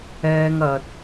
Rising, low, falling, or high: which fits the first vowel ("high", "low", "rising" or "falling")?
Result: high